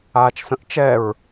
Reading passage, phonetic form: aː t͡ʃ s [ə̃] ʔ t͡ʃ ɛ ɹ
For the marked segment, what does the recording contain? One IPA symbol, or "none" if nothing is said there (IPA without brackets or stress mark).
ə̃